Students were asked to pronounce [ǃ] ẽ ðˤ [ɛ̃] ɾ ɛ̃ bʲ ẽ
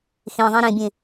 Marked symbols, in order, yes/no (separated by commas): no, yes